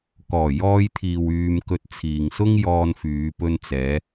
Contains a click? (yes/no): no